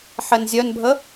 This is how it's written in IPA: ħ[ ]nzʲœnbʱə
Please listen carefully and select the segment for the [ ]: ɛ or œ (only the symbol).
ɛ